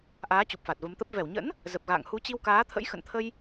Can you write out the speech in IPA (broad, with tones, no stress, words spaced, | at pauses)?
ʔaː˨˦t͡ɕu˨˩p̚fa˨˩t̚ və˨˦mt̪ə˦˥p̚ vɛ˧˩wɲə̰˧˥n | zə˨˩p̚ɣa̰ː˧˨ŋ hu˨˦t͡ɕi˧wkaː˨˦ t̪ʰə̰˧˥j xə̰˧˨nt̪ʰə˧j